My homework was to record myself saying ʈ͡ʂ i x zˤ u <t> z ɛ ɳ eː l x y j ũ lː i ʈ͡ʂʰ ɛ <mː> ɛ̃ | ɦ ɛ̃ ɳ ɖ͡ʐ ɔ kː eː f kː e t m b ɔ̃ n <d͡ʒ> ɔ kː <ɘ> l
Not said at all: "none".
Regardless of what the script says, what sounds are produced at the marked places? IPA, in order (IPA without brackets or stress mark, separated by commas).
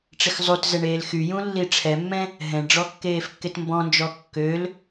t, mː, d͡ʒ, ø